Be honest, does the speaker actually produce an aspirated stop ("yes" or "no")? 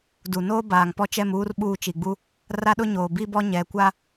no